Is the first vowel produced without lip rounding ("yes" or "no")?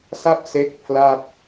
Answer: yes